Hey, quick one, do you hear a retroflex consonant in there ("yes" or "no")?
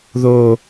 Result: no